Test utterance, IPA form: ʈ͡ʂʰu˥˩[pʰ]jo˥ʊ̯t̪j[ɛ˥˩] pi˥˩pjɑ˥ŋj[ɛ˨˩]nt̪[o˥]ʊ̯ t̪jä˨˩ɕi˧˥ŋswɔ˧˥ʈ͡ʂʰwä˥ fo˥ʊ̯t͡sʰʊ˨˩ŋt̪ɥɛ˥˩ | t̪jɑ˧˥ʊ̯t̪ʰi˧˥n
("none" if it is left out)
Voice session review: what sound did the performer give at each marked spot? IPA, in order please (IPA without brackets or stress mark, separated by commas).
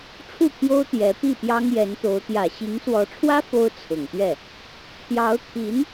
pʰ, ɛ˧˥, ɛ˧˥, o˧˥